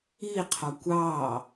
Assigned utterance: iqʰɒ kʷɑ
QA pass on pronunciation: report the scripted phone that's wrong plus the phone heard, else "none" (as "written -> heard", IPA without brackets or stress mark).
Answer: none